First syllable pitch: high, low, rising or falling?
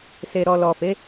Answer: low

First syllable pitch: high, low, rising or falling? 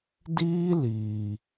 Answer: high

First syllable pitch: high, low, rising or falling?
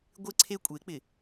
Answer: high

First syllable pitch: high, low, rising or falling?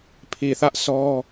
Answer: low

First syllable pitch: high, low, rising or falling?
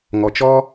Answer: low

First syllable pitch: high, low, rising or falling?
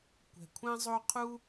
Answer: low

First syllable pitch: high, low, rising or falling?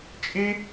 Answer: high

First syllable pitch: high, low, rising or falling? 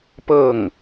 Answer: falling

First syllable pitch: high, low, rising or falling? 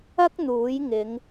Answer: high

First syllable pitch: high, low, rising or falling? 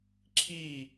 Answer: falling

